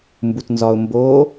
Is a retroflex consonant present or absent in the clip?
absent